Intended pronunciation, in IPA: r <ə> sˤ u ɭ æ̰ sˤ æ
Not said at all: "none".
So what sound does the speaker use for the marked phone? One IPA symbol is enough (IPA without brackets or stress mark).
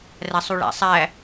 æ